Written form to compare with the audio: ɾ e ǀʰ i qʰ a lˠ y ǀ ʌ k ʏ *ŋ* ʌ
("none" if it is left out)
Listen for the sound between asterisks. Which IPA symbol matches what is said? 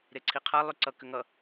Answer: ŋ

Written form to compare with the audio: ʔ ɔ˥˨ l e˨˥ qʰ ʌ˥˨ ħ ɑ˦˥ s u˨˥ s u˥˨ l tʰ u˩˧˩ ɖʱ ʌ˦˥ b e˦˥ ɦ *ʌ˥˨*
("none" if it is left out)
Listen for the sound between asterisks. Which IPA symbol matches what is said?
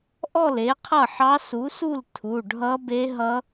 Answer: ʌ˦˥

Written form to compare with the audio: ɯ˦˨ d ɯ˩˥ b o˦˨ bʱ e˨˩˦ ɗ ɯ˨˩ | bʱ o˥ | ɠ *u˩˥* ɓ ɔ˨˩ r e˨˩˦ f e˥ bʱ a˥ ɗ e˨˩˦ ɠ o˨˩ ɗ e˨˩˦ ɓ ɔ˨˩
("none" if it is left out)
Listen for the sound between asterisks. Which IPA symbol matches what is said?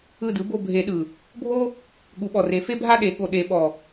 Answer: u˨˩˦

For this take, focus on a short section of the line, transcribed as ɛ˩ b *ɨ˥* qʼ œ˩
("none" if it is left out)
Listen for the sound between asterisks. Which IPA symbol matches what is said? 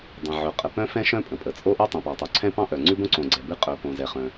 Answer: ɨ˥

